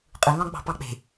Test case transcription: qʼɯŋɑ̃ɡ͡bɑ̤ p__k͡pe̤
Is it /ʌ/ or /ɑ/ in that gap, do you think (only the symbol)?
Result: ɑ